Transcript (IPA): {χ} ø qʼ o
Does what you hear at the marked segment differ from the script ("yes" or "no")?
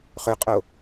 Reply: no